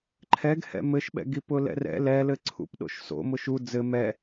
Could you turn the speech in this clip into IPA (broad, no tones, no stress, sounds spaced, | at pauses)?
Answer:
ǃʰ ɛ ɡ h ɛ̰ m ɘ ʃ ɓ ɛ̰ ɡ i p ʊ l ɛ̰ r ɛ̰ l ɛ l ɘ ǀʰ ṵ p ɗ o̰ ʃ s o̰ m ʊ ʃ u d͡z ɘ m ɛ